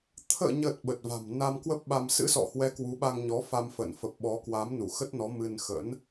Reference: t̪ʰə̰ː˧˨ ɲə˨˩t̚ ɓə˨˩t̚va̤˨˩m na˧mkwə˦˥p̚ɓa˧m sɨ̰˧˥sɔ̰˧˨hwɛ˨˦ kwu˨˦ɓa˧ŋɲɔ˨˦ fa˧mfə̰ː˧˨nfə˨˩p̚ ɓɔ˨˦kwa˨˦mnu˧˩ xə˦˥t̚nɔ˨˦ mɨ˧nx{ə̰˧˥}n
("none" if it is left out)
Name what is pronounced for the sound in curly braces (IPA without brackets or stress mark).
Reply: ə̰˧˥